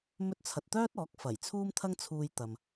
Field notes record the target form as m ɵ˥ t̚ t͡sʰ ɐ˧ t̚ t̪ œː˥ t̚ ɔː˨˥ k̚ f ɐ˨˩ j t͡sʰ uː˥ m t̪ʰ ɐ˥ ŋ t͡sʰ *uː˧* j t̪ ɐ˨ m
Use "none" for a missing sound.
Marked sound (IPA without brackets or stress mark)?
uː˧